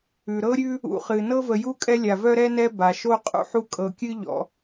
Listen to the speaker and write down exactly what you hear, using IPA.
ʉ˩ ɾ ɤ˥ ɾʲ ʉ˦ | ṵ˨ χ ɨ˩ n ɤ˦ v ə˨ j u˥ kʼ ɛ˦ lʲ a˩ v œ˥ ɾ ɛ˦ n ɛ˥ b a˩ ʃ o˥ qʼ ṵ˥ ħ u˦ kʼ ɤ˨ kʲ ɨ˥ ʎ ɔ̰˩

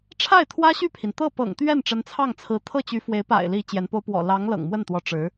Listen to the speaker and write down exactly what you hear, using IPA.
ʈ͡ʂʰ a˥˩ ɪ̯ t̪ʰ w ä˥ ɕ y˥˩ pʰ i˩ n t̪ ɤ˥˩ p ɤ̰˨˩ ŋ t̪ ɥ ɛ˥˩ n ʈ͡ʂ ə˧˥ n t͡sʰ ɑ˥˩ ŋ t͡sʰ ɹ̩˧˥ t̪ʰ ɤ˥˩ t͡ɕ y˧˥ f w e˧˥ ɪ̯ p a̰˨˩ ɪ̯ l i˧˥ t͡ɕ j ɛ˧˥ n p o˥ ʊ̯ p w ɔ̰˨˩ l ɑ˧˥ ŋ l ɤ̰˨˩ ŋ m w ə˥˩ n t̪ w ɔ˧˥ ʈ͡ʂ ɻ̩˧˥

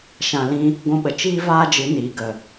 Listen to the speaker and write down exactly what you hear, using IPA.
ʃ ã˨ l ĩ˧ | ɡʷ ũ˧ ɓ ə˨ t͡ʃ iː˦ v aː˦ d͡ʒ ɨ˨˦ n iː˨ ɡ ə˨

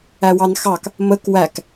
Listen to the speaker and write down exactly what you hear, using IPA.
æ w ɑ n x ɑ k | m ə k w æ k

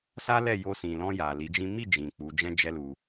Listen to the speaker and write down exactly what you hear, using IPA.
s a˦ l ɛ˦˨ j o˧ s ĩ˨ l ɔ̃˧ j a˨ l i˨˦ d͡ʒ ĩ˦ m i˦˨ d͡ʒ ĩ˨ k͡p u˨˦ d͡ʒ ɛ̃˦ d͡ʒ ɛ˦ l u˧

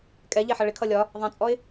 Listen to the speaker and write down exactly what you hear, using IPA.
kʼ ɛ ʎ ɛ ħ ʌ ɭ ɪ kʰ ʌ lʲ ɒ | ðˤ ɛ̃ t͡sʼ ɔ ɪ̯

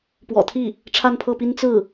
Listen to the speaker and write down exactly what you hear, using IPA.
p w ɔ̰˨˩ t̪ʰ i˥˩ | ʈ͡ʂʰ a˥˧ n pʰ ɤ˥˩ p i˥ n t͡s ɹ̩˥˩

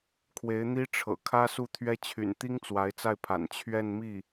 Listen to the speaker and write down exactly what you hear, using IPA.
kʰ w e˧˥ ɪ̯ n̪ i˥ ʈ͡ʂʰ ɤ̰˨˩ kʰ ä˥ s u˥˩ t̪ʰ ɥ ɛ˥ t͡ɕʰ y̰˨˩ n t̪ i˥ ŋ t͡s w a˧˥ ɪ̯ t͡s a˥˩ ɪ̯ pʰ a̰˨˩ n t͡ɕʰ ɥ ɛ˥˧ n m i˥˩

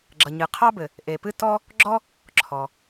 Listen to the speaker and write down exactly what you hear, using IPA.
ɡ͡ǁ ʌ˩ ɲ ɨ˩ qʰ ɑ˥ b ɘ˩ | ʔ e˩ p ɨ˥ t ɔ˥ | ɡ͡ǁ ɔ˥ | ǁʰ ɔ˩

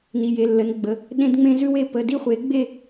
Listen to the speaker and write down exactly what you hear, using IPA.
n i˩˧˩ j e˩˧˩ lː ə˩˥ n ɡ͡b ə˩˧˩ | ɗ ẽ˦ d ŋ͡m ẽ˦ z ʉ˦ w e˩˧˩ p ə˩˧˩ d i˥˩ χʷ e˩˥ ɡ͡b e˥˩

